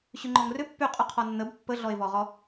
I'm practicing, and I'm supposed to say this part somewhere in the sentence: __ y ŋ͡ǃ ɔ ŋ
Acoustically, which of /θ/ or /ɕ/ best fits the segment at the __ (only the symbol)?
ɕ